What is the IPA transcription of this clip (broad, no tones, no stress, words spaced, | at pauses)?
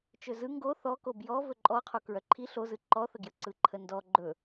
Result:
t͡ʃɵzɯ ŋɡo θɔko bjɔ vɵǃʼɔqʰo kɹœǃʰi ɬozɯ ǃɔθəɡjə ǀɯǃʰəndɔ ɡ͡ǃɵ